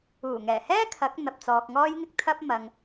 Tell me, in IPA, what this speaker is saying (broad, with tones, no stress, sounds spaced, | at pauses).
uː˨˩ ŋ ɛː˨˩ h ɛː˥ kʰ ɐ˨˥ k̚ n̪ ɐ˧ p̚ t͡s ɔː˧ k̚ ŋ ɔː˥ j ŋ ɪ˥ k̚ t̪ʰ ɐ˥ p̚ m ɐ˧ ŋ